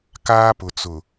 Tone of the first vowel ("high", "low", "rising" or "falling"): high